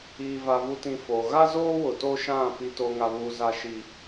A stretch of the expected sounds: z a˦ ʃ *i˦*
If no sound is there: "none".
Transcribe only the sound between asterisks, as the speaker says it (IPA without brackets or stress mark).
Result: i˦